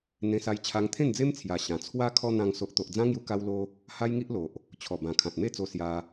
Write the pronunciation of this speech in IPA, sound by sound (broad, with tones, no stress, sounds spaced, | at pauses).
n̪ ẽ˧ s a˧ j t͡ɕʰ a˧ ŋ t̪ʰ ẽ˥˧ n d͡z e˦ m t͡sʰ j a˨˩ ɕ ã˨˩ t͡sʰ w a˦ kʰ ɔ˧ n̪ ã˧ ŋ s o˨ ʔ t̪ o˨ ʔ d͡z ã˦ ŋ j u˧ k a˦ w l o˦ | h a˦ j ŋ i˦ ʔ l o˨ ʔ | t͡ɕʰ ɔ˨˩ b ã˨˩ kʰ ã˨ t̚ m e˥˧ t͡s o˧ s j a˧